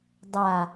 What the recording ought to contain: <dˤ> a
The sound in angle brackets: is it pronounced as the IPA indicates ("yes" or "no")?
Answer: yes